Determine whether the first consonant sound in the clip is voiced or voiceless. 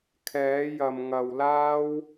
voiceless